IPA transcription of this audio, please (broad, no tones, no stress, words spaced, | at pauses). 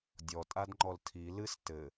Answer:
dʲɔ tʼadŋ͡ǃɔltʰi lɨs tɘ